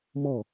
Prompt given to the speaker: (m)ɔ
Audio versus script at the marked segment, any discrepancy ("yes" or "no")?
no